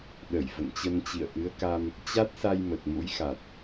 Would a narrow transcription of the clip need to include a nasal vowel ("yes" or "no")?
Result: no